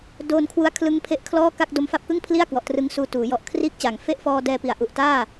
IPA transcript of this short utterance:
d oː˧ n kʰ w u˧ a̯ kʰ l ɯ˧ ŋ pʰ e˦˥ ʔ kʰ l ɔː˥˩ k a˥˩ k̚ d o˧ m f a˦˥ p̚ k ɯ˥˩ ŋ pʰ l i˥˩ a̯ k w ɔ˨˩ ʔ t r ɯ˦˥ ŋ s uː˧ t uː˩˦ j ɔ˨˩ ʔ kʰ r iː˥˩ k̚ t͡ɕ a˨˩ ŋ f e˥˩ ʔ f ɔː˧ d ɛː˧ p i˨˩ a̯ ʔ u˨˩ ʔ t aː˥˩

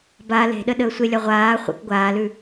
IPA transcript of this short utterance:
b a l e̤ ɗ ə ɗ əː sʷ e lʲ a ʁʷ aː χʷ ə̰ k ɡʷ aː l ʉ

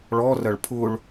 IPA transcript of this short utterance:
ɭ ɔ r ɐ ɭ pʰ ʊ ɭ

